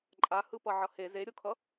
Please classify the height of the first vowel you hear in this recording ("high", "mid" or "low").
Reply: low